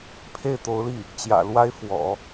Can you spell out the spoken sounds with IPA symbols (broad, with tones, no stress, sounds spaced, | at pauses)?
pʰ e˥˩ ɪ̯ t̪ o˧˥ ʊ̯ l i˥˩ | t͡ɕ j ä̰˨˩ l w a˥ ɪ̯ f w ɔ̰˨˩˦